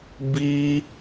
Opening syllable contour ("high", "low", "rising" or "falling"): high